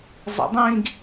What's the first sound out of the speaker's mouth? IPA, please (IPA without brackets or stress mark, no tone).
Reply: zˤ